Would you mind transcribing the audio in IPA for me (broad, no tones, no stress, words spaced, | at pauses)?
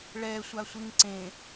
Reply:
ɭɛ sʷasʷiŋǀẽ